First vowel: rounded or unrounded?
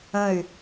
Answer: unrounded